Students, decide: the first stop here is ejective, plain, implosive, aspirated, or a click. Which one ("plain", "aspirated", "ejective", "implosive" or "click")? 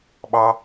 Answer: implosive